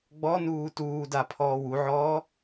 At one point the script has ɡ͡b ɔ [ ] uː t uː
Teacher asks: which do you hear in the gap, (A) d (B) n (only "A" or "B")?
B